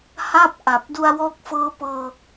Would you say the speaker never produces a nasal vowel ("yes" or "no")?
yes